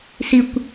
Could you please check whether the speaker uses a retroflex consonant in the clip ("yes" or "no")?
no